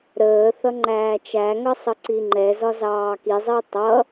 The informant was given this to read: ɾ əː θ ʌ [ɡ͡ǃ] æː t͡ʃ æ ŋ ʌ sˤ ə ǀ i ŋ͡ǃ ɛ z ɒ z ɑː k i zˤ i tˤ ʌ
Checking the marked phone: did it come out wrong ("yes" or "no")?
yes